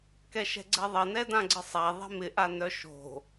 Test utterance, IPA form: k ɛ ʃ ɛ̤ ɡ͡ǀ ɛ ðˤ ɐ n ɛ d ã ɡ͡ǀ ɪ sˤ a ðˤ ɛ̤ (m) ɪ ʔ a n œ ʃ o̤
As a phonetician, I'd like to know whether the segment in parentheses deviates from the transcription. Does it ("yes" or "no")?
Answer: no